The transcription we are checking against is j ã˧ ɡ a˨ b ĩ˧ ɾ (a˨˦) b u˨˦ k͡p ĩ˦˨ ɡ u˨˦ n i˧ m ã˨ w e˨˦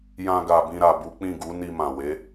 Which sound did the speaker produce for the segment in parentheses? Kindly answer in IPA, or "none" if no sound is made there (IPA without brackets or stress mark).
a˨